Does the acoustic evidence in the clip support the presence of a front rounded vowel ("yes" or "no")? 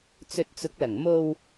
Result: no